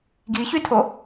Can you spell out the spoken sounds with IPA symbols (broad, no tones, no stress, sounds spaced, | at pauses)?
ɡ i ç y tʰ o